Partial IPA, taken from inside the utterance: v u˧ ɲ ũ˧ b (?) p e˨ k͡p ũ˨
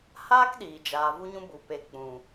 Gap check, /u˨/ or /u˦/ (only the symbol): u˨